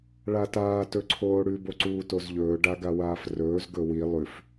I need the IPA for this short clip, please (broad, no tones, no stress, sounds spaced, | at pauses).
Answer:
ɭ a t aː t ɵ ǀʰ oː ɽ ʉ b o ǀ uː t o z ʎ ɵː ɖ a ɡ a w aː f r ɵː z ɡ ɵ w i lˠ ʉ f